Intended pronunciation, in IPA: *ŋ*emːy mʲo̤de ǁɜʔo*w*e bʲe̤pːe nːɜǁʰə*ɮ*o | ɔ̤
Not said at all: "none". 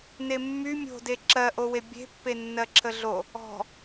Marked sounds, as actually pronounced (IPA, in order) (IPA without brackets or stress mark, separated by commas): n, w, ɮ